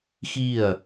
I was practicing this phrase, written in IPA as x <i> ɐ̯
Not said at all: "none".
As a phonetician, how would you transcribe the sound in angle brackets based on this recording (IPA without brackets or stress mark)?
i